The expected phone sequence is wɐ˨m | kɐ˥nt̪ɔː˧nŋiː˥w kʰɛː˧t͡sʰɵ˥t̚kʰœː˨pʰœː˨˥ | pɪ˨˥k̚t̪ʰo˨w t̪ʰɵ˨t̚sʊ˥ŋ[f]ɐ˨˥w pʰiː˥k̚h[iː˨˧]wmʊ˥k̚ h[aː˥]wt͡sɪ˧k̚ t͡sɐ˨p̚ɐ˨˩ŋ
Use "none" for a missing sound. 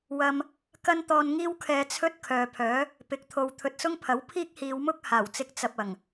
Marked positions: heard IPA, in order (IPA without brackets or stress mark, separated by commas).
pʰ, iː˨˧, aː˨˩